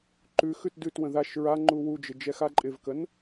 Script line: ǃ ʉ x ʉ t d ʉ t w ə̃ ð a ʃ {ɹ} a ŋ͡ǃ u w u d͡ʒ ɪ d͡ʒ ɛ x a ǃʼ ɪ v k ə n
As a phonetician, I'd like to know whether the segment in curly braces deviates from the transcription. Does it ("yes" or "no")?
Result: no